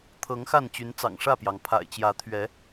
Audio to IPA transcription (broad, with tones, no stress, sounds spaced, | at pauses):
t̪ʰ ɤ˨˦ ŋ x a˥˨ n t͡ɕ y˨˦ n t͡s ɑ̰˨˩ ŋ ʂ ä˥˨ p j ɑ˩ ŋ pʰ a̰˨˩ ɪ̯ t͡ɕ j ä˨˦ t̪ʰ ɥ ɛ˨˦